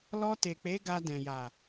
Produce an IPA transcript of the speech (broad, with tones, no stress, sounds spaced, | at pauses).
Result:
l ɔ˧ t e˨ k͡p e˨˦ ɡ a˧ d ɛ̃˨ j a˨